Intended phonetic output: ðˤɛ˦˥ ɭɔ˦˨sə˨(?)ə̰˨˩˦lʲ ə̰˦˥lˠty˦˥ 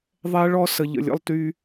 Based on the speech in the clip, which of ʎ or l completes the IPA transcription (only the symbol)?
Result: ʎ